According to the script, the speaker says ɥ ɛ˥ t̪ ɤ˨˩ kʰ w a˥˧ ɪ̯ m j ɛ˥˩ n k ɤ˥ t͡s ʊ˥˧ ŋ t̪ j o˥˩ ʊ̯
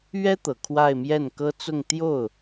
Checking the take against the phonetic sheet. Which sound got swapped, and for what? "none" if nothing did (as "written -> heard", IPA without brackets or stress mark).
none